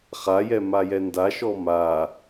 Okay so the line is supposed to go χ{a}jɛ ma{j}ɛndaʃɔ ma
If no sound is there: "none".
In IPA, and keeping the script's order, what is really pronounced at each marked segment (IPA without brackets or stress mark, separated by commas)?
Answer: a, j